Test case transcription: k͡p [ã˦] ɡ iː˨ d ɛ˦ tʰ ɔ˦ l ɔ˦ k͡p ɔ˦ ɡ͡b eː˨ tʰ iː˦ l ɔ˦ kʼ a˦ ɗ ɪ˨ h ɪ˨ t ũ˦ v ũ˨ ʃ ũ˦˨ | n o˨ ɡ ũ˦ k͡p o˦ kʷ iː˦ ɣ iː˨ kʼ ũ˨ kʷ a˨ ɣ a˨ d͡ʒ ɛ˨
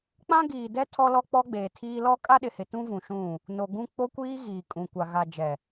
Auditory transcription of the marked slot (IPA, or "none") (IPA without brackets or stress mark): ã˦